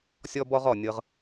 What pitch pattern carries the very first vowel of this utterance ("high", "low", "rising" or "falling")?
high